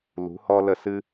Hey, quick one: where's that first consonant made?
tongue tip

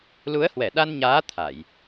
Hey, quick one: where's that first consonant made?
tongue tip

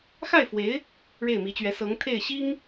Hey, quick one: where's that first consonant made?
velum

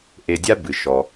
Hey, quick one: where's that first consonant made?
throat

